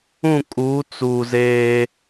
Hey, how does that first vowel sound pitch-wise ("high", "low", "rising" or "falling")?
falling